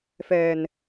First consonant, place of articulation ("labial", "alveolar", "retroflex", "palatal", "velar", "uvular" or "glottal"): labial